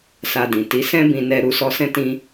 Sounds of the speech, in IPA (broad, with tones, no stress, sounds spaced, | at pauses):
s a˧ d ĩ˨ t i˨˦ s ɛ̃˦ b ĩ˦ n ɛ˦ ɾ u˧ s ɔ˧ s ɛ̃˦ t ĩ˦